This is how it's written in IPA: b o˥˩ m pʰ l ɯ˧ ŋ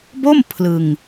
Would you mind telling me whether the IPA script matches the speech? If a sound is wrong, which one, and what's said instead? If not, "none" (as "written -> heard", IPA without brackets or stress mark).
none